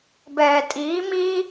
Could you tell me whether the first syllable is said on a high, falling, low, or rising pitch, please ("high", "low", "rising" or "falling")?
low